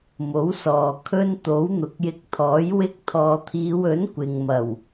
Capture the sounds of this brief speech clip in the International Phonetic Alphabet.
m o˨˥ w s ɔː˨ kʰ ɵ˥ n t̪ o˨˥ w n̪ ʊ˨ k̚ j ɪ˧ k̚ t̪ʰ ɔː˨˥ j w ɪ˧ k̚ t̪ʰ ɔː˨ t̪ʰ iː˨˧ w ɵ˨˥ n kʷ ɪ˨ ŋ m ɐ˨˩ w

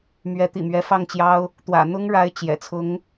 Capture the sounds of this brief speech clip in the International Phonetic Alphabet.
m ɥ ɛ˧˥ t̪ ḭ˨˩ m ɥ ɛ˧˥ f ɑ˥˩ ŋ t͡ɕ j ɑ˥ ʊ̯ | t̪ w ä̰˨˩ n̪ ʊ˥ ŋ ɻ a˧˥ ɪ̯ t͡ɕ j ɛ̰˨˩ t͡sʰ ʊ˧˥ ŋ

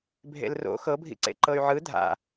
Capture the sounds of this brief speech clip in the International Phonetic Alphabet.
bʱ ḛ l r o̰ x ɤ bʱ ḭ ǀ ḛ ǃ ɤ y̯ ʕ ɯ dʱ a̰

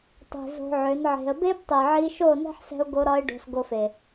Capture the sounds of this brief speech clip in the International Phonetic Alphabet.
tˤ e̤˨ z o̤˧ ʕ ø˨˦ n ʕ e̤˧ ə̯ b e˦ b tˤ i˨ ʕ i˧ ʃ o˦˨ n ɛ̤˦ ħ s ɛ̤˧ ʊ̯ ɡ o˧ ɾ ɒ˧ ɪ̯ ɖ o̤˧ s ɡ o˧ f e˨

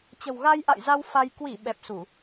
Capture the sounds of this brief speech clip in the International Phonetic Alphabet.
t͡ɕ ə̤˨˩ w ɣ a˧ j ʔ a̰˧˨ j z a˧ w f a˧ j k w i˧˩ ɓ ɛ˨˩ p̚ s u˧˩˨

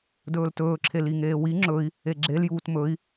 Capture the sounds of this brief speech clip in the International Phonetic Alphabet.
d ɵː l t ɵː ǁʰ e l i ŋ eː w i ŋ͡ǁ ɵ i̯ | e ɡ͡ǁ e l j uː t m ɵ i̯

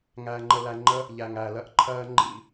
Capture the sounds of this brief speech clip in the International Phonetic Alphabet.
ŋ æː˨ ŋ͡ǃ ə˨ l æ˨ ŋ͡ǃ ə˦ | ʎ æ˨ ŋ æː˨ l ɜ˦ ʔ ǃʰ ɜː˦ ŋ͡ǃ ḭ˦

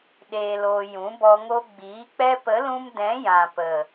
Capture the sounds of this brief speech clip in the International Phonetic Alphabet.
ɗ eː˨ l oː˨ j ũ˨˦ b ɔ˧ ŋ o˧ ɡ͡b iː˨˦ k͡p ɛ˧ p ə˨˦ l ũ˧ m d ɛ̃˨˦ j ã˨ p ə˨

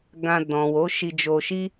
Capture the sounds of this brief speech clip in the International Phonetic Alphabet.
ɡ ã˧ d ɔ̃˨ w o˨˦ ʃ i˧ d͡ʒ o˧ ʃ i˦

